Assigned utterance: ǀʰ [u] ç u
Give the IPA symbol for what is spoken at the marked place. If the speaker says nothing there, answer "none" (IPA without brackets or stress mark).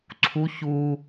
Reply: u